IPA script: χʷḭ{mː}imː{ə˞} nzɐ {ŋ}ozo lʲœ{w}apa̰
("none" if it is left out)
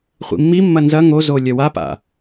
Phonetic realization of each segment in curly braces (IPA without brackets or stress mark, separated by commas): mː, ɐ, ŋ, w